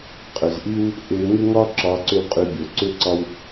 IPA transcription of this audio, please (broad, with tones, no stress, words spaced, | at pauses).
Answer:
qʼʏ˨zʔi˦w | ʔʏ˧ ŋʏ˦ŋɒ˦ ǁɒ˧ ǀʏ˦˨wqʼy˧bʲo˨ ǀʏ˦ǀɒ˦w